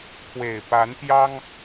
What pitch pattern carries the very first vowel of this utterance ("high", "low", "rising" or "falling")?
low